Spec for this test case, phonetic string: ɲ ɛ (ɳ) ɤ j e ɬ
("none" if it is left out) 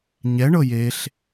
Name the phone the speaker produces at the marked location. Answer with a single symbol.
ɳ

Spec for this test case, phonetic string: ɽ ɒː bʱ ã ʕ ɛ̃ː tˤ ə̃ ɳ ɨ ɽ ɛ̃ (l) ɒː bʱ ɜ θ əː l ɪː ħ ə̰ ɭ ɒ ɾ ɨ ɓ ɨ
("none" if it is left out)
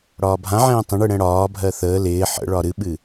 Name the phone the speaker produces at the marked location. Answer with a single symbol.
ɽ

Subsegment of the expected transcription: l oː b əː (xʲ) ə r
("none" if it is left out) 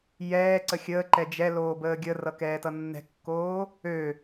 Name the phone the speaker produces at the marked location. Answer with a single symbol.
ɡʲ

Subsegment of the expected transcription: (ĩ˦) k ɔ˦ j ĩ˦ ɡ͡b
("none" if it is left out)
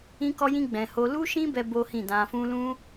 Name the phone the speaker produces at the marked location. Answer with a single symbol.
ĩ˦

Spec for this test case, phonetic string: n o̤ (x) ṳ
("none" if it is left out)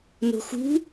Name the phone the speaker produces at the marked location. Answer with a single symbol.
x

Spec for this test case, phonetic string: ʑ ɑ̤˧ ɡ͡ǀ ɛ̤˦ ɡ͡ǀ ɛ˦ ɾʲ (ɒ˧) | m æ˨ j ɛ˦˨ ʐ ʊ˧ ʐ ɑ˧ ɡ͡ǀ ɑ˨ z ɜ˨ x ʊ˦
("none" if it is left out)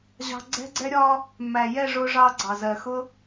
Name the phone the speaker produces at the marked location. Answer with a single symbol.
ɒ˧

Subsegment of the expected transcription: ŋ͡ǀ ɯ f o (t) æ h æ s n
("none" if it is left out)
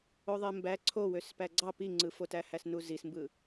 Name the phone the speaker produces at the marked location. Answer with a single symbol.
t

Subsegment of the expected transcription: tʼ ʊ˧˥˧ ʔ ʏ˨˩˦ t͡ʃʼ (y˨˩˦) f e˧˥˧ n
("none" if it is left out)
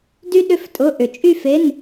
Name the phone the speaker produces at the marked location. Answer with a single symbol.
y˥˧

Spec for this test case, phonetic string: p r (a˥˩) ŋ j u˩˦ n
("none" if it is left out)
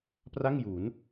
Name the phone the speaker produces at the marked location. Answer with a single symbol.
a˥˩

